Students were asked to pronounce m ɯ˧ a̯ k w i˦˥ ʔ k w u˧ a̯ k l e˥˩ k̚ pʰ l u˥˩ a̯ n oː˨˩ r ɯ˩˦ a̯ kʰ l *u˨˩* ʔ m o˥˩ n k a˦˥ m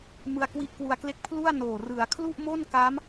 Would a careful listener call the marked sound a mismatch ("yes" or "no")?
yes